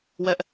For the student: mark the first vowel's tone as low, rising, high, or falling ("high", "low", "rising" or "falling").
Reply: high